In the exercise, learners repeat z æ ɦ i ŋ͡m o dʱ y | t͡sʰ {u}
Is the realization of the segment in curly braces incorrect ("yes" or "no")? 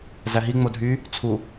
no